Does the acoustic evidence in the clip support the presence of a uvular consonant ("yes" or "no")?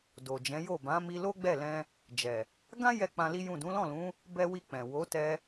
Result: no